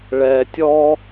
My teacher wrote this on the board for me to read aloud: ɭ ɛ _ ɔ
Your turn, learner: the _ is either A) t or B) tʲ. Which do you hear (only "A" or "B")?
B